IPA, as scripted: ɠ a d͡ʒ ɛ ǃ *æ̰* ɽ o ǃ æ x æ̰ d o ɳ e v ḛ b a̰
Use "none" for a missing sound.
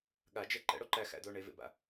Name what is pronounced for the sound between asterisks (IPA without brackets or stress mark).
ɛ̰